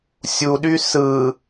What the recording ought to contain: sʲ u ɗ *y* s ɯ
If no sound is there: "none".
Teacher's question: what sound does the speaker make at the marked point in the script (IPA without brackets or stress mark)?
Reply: y